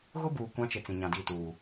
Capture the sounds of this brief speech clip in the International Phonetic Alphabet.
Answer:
ɣʊ˦ buː˨ kʷã˦t͡ʃɪ˨ t͡sĩ˨ɲã˨di˦˨ tuː˨

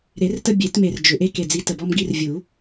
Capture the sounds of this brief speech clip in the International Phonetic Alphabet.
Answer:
ɾe˨˩˦rtə˦bʲe˨˩˦tme˨˩r d͡ʒʏ˨˩ ʔe˦ ke˨˩d͡zi˨˦ tə˨˩bɔ˦mɡi˦r vʲu˨˩˦

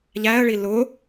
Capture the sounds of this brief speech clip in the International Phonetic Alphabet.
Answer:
ʎæə̯ɭi lʊ

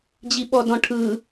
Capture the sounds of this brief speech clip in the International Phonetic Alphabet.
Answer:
d͡ʑiɓɔdɔ̃ʈʰɯ

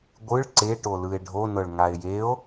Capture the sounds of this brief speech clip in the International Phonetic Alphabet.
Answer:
ɡʷɯɭ ǀeʈolɯe̯ ɖʱonɤɭŋae̯ jeo̯

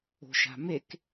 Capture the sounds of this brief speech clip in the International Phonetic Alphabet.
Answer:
o̤ʃa̤mek

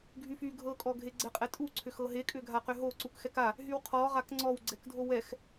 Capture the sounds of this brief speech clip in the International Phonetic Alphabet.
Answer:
ɡʱyfy ɡʱɤkʼɔ ɡʱeɡ͡ǀɛqʼɛtʼu ǀʰʏxɤɦekʼʏ ɡʱaqʏɦo ǀukxɛka | ɦywqʰɔ ʁakŋ͡ǀɔwɡ͡ǀɛkdʱo wɛx

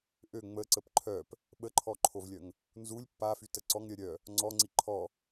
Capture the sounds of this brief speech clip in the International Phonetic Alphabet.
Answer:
ʔø ŋ͡məǀəp ǃʰœp | ɓəǃʰɔǃʰovlʲœŋ | nzulʲ pːafytə ǀɔŋɾʲœ ɾʲœ | ŋ͡ǀɔŋ͡ǀi ǃʰɔ

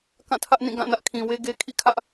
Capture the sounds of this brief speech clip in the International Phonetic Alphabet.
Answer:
kã˦˨tʰä˦ʔnĩ˦˨ ɡã˦˨nä˦ʔkʰĩ˨ we˦ɡe˦ kʰḭ˦˨kʰä˦ʔ

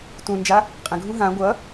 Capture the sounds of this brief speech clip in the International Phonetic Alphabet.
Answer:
tũnd͡ʒa | qʼə̃ɡʱũ ɦã ɡʷʌ

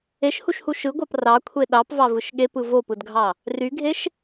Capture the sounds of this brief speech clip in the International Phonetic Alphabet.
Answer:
eʃhuʃhu ʃɯɡʷɑp rɑkʷʰe ɗɑpvɑvɯʃ ɠepɯ vopɯdɡʱɑ | ryɡʱeʃ

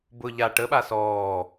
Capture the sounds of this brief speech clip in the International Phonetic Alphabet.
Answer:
bʊ ʎa ʈəɓa sɔː

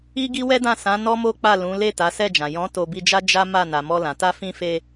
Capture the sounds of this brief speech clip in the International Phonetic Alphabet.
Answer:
i˦ɡi˦wɛ˦dã˦˨ sã˨˦ nɔ˦mo˦k͡pa˦˨ lũ˨˦ le˦˨ta˨˦sɛ˦˨d͡ʒã˨ jɔ̃˨˦ to˧bi˧d͡ʒa˦ d͡ʒa˦ma˦˨ na˨mɔ˧lã˨ ta˧fĩ˧fe˧

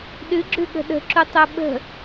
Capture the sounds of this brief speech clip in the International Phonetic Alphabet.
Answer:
ɗɨɡ͡ǁʉɠə̤ ɗə̤ǁutˤo ɓə̤

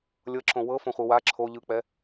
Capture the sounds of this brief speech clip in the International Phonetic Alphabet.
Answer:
lʲɤǁõ wɤfõχʷɯ wa ǁʰo ʎɯk͡pɛ

